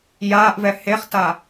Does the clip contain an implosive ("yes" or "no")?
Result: no